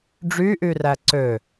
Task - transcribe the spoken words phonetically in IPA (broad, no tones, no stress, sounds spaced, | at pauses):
ɖ͡ʐ y ʔ y r æ ǀ ø